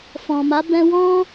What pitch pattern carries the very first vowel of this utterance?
low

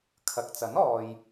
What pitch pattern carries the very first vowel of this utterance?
low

